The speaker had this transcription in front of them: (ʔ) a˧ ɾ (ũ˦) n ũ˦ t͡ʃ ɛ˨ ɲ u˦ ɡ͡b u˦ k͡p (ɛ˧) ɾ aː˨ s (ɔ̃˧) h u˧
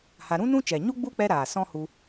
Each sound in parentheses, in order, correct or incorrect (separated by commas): incorrect, correct, correct, incorrect